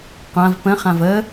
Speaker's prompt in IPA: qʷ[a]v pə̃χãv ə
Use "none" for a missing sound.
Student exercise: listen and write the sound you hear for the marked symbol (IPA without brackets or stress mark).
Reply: ã